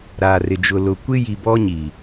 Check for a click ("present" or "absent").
absent